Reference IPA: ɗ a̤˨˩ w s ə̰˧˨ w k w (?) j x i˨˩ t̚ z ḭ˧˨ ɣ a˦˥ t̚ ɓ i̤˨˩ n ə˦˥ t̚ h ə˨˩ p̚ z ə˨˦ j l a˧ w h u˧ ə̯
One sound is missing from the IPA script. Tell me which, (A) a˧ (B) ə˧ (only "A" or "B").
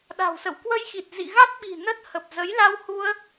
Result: B